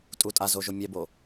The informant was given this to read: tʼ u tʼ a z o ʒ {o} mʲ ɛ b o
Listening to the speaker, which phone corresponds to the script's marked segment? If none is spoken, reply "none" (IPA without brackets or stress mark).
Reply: o